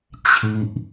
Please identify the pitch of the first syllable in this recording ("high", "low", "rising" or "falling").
falling